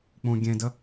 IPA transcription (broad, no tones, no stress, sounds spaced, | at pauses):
k͡p ũ ɡʲ ẽ d ə